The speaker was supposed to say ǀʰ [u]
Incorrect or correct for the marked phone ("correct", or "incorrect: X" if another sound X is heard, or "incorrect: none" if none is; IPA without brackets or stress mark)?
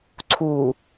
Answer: correct